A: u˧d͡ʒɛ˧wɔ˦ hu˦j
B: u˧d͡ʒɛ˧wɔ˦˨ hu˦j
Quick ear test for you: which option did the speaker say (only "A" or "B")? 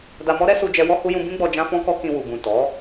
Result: A